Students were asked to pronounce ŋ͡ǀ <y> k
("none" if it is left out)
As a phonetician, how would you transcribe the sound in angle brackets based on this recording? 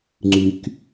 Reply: y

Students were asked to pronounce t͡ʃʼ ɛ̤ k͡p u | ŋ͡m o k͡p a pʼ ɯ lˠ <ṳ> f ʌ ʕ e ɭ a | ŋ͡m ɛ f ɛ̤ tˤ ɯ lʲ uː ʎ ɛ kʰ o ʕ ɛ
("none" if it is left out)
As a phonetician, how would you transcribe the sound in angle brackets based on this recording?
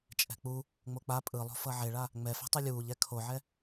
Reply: o̤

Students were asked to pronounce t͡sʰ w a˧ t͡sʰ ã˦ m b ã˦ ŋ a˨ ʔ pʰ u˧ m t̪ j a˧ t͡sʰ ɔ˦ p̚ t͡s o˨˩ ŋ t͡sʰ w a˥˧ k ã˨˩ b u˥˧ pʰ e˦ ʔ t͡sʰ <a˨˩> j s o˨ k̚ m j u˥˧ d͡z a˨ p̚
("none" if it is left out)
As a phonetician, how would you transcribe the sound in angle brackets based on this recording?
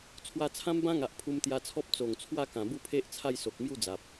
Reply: a˥˧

